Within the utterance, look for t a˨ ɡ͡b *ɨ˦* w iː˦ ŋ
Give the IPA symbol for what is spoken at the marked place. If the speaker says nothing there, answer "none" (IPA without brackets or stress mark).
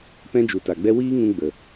ɛ˦